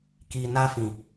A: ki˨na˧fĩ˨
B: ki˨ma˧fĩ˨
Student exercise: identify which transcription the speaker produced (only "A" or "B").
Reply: A